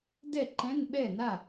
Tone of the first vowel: falling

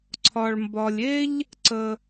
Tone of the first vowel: low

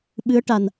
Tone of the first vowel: rising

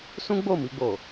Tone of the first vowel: high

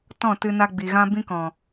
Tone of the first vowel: falling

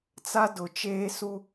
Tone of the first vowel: high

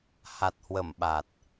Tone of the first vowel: low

